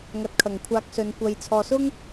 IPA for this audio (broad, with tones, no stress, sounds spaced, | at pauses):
ŋ ɐ˨˥ t̚ kʰ ɐ˨˩ ŋ kʷʰ aː˧ k̚ s ɵ˨˧ n kʷ ɐ˨ j t͡sʰ ɔː˨ s ʊ˥ ŋ